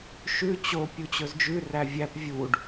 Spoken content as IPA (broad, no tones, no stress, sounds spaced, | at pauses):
ʃ ʉ t͡ɕ o pʲ u t͡ɕ ɵ z d͡ʒ ʉ r æ vʲ æ p vʲ u ɖ